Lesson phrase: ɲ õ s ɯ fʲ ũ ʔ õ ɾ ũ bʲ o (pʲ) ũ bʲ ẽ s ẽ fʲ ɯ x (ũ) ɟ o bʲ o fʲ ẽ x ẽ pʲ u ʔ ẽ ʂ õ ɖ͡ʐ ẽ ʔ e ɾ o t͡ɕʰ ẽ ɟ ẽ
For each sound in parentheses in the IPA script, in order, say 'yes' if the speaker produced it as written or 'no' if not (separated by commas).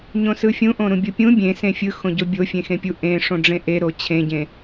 yes, no